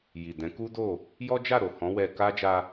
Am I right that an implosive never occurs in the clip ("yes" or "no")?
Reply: yes